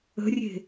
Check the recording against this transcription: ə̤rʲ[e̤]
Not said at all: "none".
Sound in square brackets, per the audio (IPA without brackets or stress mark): e̤